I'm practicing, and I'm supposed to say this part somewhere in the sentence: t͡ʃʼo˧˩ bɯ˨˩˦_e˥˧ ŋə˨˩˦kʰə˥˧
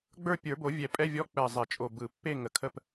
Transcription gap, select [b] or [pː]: pː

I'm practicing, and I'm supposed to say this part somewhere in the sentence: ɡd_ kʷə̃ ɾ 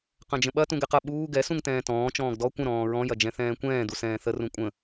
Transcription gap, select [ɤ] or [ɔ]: ɔ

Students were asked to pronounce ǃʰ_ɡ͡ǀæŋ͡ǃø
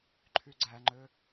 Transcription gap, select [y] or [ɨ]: y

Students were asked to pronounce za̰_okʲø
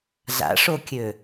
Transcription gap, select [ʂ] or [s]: ʂ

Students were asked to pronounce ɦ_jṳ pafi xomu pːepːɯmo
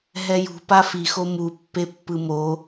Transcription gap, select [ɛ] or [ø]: ɛ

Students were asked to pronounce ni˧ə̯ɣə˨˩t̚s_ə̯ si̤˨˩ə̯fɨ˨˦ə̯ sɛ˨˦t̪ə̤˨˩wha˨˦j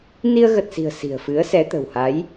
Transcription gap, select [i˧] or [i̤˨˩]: i̤˨˩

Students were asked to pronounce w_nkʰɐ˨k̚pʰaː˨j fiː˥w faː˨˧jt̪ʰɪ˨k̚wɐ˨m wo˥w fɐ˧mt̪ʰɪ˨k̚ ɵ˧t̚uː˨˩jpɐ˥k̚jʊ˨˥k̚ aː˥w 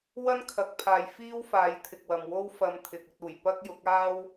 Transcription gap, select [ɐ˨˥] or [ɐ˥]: ɐ˥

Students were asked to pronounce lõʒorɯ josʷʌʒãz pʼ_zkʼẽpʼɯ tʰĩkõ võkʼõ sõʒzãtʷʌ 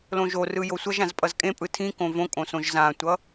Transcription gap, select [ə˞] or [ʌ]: ʌ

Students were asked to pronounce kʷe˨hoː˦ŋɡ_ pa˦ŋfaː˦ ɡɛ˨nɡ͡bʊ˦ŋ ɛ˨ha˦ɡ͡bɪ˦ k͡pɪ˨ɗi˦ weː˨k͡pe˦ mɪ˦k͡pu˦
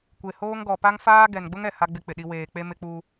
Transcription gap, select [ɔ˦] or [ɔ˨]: ɔ˨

